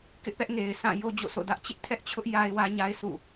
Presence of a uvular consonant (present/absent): absent